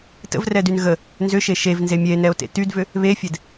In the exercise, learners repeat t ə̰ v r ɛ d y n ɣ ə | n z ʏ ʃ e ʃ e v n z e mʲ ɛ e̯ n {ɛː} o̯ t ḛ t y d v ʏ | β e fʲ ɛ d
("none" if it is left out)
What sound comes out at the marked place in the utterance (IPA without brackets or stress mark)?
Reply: ɛ